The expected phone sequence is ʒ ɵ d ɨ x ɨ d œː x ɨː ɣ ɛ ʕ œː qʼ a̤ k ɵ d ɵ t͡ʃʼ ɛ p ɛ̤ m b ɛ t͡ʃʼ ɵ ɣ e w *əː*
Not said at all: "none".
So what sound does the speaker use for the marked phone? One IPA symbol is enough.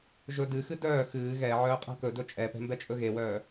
œː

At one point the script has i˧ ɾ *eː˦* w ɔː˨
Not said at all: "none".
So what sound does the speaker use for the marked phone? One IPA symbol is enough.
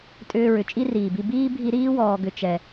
iː˦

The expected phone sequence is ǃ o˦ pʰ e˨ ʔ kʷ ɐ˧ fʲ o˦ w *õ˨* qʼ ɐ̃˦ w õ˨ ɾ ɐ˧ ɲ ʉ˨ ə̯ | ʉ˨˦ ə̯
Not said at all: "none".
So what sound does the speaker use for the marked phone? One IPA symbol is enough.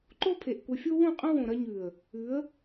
õ˦˨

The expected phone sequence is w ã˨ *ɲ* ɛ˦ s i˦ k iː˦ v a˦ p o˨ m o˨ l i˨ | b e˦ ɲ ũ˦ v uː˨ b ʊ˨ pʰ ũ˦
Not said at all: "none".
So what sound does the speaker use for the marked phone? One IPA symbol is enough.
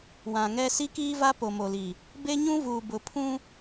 ŋ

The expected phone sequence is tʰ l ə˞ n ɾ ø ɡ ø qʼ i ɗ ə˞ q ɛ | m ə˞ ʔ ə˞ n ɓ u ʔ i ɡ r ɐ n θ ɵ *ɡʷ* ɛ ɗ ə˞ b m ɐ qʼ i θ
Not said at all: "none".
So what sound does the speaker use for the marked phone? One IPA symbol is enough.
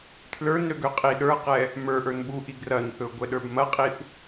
ɡʷ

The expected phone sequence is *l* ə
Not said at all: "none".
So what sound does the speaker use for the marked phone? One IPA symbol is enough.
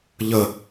ʎ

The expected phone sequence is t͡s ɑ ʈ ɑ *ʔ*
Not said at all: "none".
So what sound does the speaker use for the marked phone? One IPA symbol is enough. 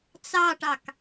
k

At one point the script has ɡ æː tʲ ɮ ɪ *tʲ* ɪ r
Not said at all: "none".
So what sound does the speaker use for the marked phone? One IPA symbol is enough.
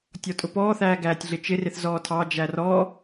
t͡ʃ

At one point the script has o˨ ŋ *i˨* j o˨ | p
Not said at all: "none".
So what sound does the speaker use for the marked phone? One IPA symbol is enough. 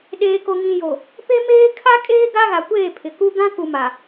ĩ˨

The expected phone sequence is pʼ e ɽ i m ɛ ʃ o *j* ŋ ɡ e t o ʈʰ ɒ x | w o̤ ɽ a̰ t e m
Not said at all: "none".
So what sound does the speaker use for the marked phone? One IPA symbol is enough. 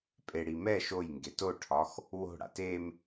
j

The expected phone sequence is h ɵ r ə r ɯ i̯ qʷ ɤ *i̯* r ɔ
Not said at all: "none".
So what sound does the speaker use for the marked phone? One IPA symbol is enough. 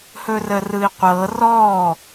none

